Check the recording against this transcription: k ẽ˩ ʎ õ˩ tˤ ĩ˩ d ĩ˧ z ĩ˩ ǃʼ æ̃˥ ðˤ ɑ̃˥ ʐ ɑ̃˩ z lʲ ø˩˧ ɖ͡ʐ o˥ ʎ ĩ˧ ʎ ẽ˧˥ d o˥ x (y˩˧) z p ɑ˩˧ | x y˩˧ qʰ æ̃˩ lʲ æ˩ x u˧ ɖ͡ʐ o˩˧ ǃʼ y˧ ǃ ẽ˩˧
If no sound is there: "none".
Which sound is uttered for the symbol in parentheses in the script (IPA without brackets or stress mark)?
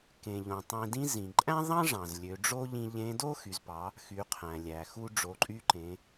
y˩˧